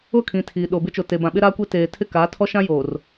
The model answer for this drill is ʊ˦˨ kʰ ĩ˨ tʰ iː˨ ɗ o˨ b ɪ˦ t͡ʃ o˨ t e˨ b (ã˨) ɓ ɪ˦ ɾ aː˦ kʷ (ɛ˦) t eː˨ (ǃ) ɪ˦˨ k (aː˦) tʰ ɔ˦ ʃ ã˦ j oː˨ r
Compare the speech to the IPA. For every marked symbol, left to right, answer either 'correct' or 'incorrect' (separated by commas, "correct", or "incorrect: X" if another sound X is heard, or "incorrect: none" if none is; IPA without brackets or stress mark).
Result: correct, incorrect: e˦, incorrect: tʰ, incorrect: aː˨˦